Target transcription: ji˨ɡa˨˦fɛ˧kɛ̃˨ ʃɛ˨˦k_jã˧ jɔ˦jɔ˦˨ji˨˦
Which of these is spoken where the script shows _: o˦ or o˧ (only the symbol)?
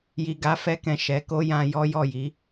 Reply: o˦